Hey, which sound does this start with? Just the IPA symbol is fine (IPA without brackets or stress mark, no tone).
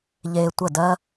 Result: ʎ